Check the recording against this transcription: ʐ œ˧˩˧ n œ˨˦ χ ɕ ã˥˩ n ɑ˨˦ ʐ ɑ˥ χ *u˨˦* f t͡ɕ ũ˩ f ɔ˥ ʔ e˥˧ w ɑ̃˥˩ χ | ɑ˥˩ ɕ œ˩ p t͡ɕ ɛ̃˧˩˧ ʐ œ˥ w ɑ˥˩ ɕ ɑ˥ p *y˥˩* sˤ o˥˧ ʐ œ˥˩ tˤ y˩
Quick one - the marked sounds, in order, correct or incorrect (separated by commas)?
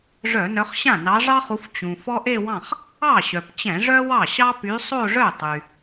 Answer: correct, incorrect